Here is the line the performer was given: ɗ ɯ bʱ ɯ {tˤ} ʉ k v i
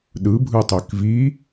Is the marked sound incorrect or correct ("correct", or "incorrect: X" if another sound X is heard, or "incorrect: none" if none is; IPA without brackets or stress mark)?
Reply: correct